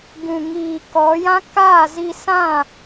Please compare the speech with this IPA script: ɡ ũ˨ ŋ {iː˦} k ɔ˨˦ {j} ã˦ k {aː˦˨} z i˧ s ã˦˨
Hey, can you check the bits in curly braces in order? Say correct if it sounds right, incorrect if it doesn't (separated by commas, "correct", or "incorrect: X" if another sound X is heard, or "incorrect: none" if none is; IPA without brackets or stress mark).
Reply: incorrect: iː˨, correct, correct